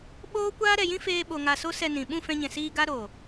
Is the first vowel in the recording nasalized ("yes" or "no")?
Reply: no